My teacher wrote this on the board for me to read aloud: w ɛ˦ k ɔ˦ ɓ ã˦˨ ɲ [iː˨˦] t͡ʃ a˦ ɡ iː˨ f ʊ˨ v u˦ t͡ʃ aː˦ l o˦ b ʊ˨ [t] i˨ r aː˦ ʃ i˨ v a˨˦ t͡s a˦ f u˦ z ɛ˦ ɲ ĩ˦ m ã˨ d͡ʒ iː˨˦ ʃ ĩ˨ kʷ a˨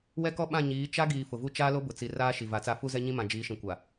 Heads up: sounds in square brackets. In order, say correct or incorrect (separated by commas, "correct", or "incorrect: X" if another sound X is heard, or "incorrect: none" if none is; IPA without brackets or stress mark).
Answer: correct, incorrect: t͡s